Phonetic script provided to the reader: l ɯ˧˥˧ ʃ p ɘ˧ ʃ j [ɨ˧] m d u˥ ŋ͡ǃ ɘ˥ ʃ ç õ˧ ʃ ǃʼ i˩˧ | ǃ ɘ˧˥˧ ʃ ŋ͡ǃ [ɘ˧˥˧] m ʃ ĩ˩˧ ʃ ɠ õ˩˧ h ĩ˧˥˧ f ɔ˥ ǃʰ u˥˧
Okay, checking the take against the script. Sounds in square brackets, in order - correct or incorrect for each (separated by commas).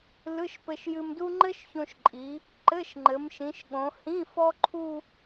correct, incorrect